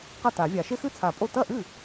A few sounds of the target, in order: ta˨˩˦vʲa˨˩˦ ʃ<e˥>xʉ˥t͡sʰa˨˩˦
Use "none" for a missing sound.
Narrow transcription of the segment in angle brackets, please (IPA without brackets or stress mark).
e˥